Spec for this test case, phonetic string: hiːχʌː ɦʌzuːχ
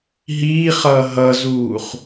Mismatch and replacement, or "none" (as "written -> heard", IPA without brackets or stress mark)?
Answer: h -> ɦ